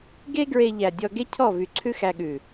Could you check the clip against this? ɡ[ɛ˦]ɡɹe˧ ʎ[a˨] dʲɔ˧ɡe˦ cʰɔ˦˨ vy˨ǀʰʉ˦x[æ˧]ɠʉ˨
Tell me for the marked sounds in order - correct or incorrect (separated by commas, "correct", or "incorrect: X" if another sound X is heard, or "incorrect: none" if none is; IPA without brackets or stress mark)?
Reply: incorrect: e˦, incorrect: æ˨, correct